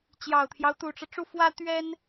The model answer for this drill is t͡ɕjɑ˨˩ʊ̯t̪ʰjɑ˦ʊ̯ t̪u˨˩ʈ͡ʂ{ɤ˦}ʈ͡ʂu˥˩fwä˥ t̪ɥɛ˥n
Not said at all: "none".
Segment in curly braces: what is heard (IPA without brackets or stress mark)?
ɤ˦